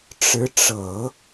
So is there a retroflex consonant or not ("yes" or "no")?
yes